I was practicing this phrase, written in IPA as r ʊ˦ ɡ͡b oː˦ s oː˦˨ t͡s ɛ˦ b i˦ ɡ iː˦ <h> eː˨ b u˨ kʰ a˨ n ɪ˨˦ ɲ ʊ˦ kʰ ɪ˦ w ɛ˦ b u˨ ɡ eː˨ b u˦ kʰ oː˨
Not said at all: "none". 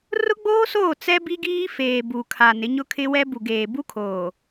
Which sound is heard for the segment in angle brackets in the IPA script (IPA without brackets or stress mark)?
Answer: f